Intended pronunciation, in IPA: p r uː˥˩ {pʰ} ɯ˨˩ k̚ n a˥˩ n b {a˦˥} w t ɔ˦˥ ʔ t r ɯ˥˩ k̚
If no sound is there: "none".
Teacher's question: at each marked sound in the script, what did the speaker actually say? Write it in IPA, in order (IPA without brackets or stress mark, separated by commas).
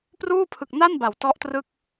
pʰ, a˩˦